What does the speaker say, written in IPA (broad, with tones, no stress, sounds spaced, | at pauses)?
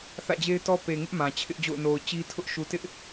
θ ä̰˦˨ d͡ʑ e˦ ɪ̯ t ɔ˦ p e˨ ŋ ɪ˦ ʔ m ã˨ t͡ɕʰ ɪ˦ ʔ d͡ʑ o̰˦˨ ʊ̯ n o˨ ʊ̯ t͡ɕ i˦ tʰ ʊ˦ ʔ ʃ u˨ t ɪ˦ ʔ